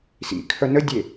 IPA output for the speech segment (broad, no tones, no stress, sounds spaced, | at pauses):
s ḭ kʰ œ n ə dʲ e